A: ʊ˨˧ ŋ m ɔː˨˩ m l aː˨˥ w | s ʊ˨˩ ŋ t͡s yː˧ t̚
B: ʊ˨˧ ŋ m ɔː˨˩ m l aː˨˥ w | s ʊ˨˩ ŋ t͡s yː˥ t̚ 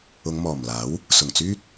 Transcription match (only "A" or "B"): B